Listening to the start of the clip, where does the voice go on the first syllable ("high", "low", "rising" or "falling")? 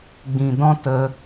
low